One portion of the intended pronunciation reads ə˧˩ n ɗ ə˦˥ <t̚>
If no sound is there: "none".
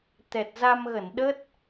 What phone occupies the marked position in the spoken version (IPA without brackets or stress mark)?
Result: t̚